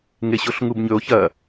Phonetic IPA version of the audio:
ŋ e ɕ o ɬ ŋ u b ɲ ɵ o̯ ç ɐ

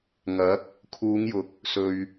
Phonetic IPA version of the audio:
ŋ ɐ˨˥ k̚ | kʰ uː˨˧ ŋ j ʊ˨ k̚ | s ɵ˨ ɥ

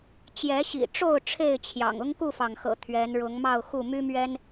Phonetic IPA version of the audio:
t͡ɕ j ɛ˨˦ ɕ ḭ˨˩ ʈ͡ʂ o˥˨ ʊ̯ ʈ͡ʂʰ e˥˨ ɪ̯ t͡ɕʰ j ɑ̰˨˩ ŋ ʊ˦ ŋ k u˥˨ f ɑ˩ ŋ x ɤ̰˨˩ t̪ʰ ɥ ɛ˨˦ n ɻ ʊ˨˦ ŋ m ɑ˥˨ ʊ̯ x u˥˨ m y˦ m ɥ ɛ˦ n

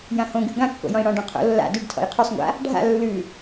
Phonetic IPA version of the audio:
j ã h õ ɡ ʉ ɡ ã kː o̰ j ɔ̃ i̯ ɽ ɔ̃ ɖ ɔ̃ qʰ o̰ lː a̰ d ʉ ɖ tʰ ɔ̰ j qʰ ʉ sˤ ŋʷ a̰ | ɖʱ a̰ lː ʉ

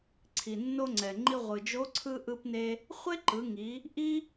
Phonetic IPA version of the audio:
ǀʰ i˩ nː o˧ ŋ͡ǀ ɛ˩ ŋ͡ǃ i˧ ʁʷ ɯ˩ d͡ʒ o˧˥ ǀʰ ɯ˧ ʔ ɯ˧ p n e˧ | χʷ e˥ ǃ ɯ˩˧ ŋ i˩˧ | ʔ i˥

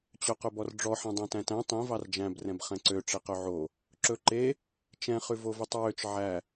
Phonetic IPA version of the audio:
t͡ɕ œ q ɵ b ɔ r ɖ͡ʐ ɔ ħ ɛ̃ dˤ æ̃ t æ̃ t æ̃ tˤ ĩ v ɑ r d͡ʒ æ̃ b r ɛ̃ b χ ɛ̃ ǀ ø ʈ͡ʂ e q ø ʕ o | ǁ ɵ ǃ e | t͡ʃ ɛ̃ χ ʉ v o v y tˤ ɹ ø t͡ʃ ʕ æ

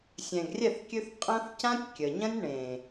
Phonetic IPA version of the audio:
sʲ ɛ̃˨ ɡ rʲ ɛ˦˨ θ kʲ ʉ˧ θ qʼ ɐ̃˦ θ c ã˦ tʲ kʲ ə˨ ɲ ɐ̃˦ nʲ ɳ ẽ˨

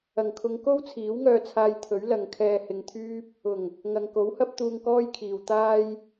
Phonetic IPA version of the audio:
ɐ˨˩ ŋ kʰ ʊ˨˧ ŋ k o˥ w t͡sʰ iː˨˥ w ŋ œː˧ t͡sʰ aː˧ j t̪ʰ ɵ˨˥ ɥ l ɐ˨˧ ŋ kʰ ɛː˧ h ɪ˧ ŋ t̪ʰ yː˥ p̚ | ʊ˨˩ ŋ | ŋ ɐ˨ ŋ k o˨˥ w h ɐ˥ p̚ t̪ uː˧ ŋ k ɔː˥ j kʰ iː˨ w t̪ aː˥ j

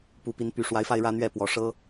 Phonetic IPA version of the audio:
p u˨˦ p i˨˦ n p y˨˩ ʂ w a˨˦ ɪ̯ f a˧ ɪ̯ ɻ ä˦ n̪ ɥ ɛ˥˨ p w ɔ˨˩ ʂ ɤ˦

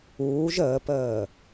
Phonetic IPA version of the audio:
uː ʒ əː p əː

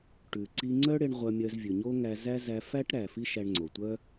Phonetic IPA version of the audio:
ʈ ʉ˩ ǀ i˧ ŋ͡ǀ œ˥ ɽ e˧ ɳ ʁʷ œ˧ mʲ œ˧ z vʲ ʉ˩ ɲ o˥ ŋ æ˧ z æ˥ z æ˧ f æ˥ ʈ ɾ æ˩ f i˥ ʃ æ˧ ɳ ŋ͡ǀ o˩ tʷ œ˥

